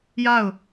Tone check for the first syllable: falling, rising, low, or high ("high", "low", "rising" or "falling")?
falling